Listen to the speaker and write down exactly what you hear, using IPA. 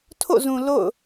tʰo̰˦˨zũ˨ lo̰˦˨ʊ̯

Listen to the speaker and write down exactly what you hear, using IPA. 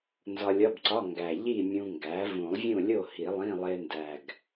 nzɒ˧lʲɒ˧˥˧bǀɒ˧˥˧ ŋɡæ˨˩ ʎi˥˨ mʲũ˧ŋɡæ˩˥ vũ˨˩˦lˠvʲũ˥˨lʲo˥˨ hi˨˩˦lˠĩ˧˥˧lˠe˧ndæ˨˩ɡ

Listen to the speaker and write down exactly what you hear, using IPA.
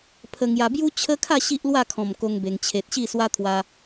pʰə˧ŋja˧ bju˦t͡ɕʰə˦kʰa˥˧ ɕi˦ʔlwa˥˧kʰɔ̃˨˩m ko˦ŋbe˧ŋ t͡ɕʰe˨t̚ɕi˥˧ swa˦t̪ʰwa˧

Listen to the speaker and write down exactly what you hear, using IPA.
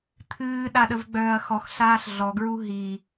t̪ʰɨːɗaɗəvɡ͡bœːɐ̯ xɔxɬaːɬ ɮɔɡɹu ɦi

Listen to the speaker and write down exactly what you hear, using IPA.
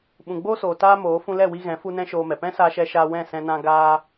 ɓũ˨ɡ͡boː˧soː˨ taː˦moː˨˦ fũ˧lɛ˦˨wi˧ɣɛ̃˨˦ fu˦nɛ̃˦ʃoː˧mɛ˨ pɛ̃˦saː˧ʃɛ˧ʃaː˧ wɛ̃˦˨sɛ̃˧nã˧ ɡaː˧

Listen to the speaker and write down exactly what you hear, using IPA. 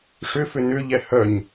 ʂʏfʏ nʏʎɛ hœɲ

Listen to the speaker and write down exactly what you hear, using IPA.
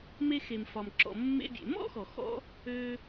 me˧xe˩mfɒ˩mǁɔ̰˩ mːḛ˧bʲḛ˩ mɔ̰˥xɔ˩xɔ̰˧ | ø˧

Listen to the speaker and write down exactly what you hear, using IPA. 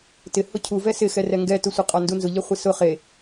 tɪ hʊcʰu vɛsɪxɛ rɛŋɡɛtʊsʷɪ qʼɔndunzʊʎɛ χʷisʊ χe

